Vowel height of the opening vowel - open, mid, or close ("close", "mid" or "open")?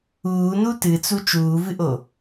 close